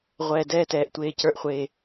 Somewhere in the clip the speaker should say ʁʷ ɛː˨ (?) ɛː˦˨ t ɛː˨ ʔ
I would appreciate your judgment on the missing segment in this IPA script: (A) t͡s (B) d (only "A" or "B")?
B